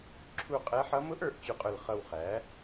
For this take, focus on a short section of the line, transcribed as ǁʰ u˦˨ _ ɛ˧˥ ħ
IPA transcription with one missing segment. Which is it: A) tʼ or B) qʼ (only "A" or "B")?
B